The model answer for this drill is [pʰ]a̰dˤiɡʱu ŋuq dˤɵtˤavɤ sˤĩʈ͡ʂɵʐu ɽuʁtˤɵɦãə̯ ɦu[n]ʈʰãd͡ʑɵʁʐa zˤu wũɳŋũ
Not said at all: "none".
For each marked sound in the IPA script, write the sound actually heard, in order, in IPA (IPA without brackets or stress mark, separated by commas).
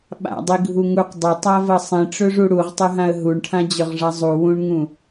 ɓ, ɳ